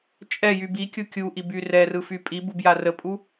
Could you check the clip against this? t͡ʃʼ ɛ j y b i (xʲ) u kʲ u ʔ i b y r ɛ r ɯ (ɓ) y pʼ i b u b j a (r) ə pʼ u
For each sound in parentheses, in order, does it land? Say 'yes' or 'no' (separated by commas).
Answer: no, no, yes